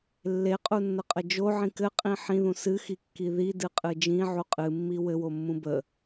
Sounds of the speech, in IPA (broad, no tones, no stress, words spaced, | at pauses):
lːeqʼunːəqʼə d͡ʒoʕĩ kɘqʼĩ ħĩðũ sɨxikːi ðidɨqʼɨ d͡ʒĩʕu qʼɨmːi wɘwomːũ bə